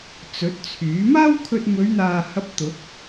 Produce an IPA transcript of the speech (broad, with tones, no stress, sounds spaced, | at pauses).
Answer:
t͡s ɵ˨˥ t̚ t͡sʰ yː˨˥ m aː˥ w kʰ ɵ˧ t̚ m ɵ˨˧ ɥ n̪ aː˨ h ɐ˧ p̚ t̪ ʊ˨˥ k̚